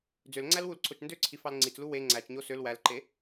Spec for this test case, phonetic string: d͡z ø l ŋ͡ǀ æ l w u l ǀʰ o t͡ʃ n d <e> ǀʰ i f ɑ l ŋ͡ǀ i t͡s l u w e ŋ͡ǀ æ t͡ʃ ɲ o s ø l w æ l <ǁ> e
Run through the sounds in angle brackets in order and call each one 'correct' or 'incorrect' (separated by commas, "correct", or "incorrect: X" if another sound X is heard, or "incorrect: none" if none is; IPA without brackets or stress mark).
incorrect: ø, incorrect: ǃ